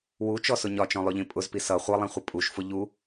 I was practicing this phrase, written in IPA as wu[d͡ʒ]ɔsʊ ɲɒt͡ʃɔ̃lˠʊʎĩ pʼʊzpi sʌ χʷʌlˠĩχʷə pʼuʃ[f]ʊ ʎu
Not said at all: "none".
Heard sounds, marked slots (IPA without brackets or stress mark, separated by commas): t͡ʃ, f